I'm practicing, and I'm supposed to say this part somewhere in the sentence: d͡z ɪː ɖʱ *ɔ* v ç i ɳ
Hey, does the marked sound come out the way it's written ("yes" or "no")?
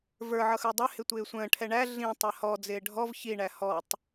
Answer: yes